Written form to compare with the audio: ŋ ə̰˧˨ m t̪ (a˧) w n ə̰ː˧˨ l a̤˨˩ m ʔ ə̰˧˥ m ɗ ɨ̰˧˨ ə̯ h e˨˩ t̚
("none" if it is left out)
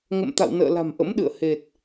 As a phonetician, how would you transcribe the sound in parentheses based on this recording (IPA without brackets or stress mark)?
a̰˧˨